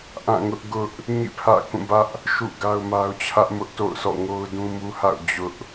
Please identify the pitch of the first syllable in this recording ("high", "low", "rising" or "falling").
falling